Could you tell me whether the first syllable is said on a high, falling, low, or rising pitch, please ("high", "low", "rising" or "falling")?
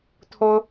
high